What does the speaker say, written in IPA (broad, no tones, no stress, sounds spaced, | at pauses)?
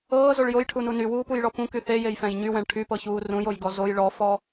ɤː z o ɭ j o j ʈʰ u n u n y w uː p u j ɭ ɔ p ũ k y θ e j e j f ɛ̃ j ɲ y w ɛ̃ ɭ ʈʰ y p ɤ ç uː r ũ j o j ɡ ɔ z o j ɭ ɔ f ɔ